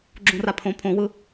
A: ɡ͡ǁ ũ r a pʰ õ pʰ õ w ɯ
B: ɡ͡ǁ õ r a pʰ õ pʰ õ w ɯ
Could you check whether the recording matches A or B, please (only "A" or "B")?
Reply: A